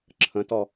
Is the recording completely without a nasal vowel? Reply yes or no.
no